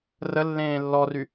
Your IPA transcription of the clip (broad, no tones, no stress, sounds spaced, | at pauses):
r ə lː ẽː lː ɔ r y